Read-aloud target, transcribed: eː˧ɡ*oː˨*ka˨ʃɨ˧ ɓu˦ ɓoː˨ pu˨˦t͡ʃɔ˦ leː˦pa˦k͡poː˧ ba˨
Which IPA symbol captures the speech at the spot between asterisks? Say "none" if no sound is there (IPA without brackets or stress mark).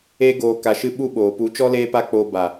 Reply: oː˨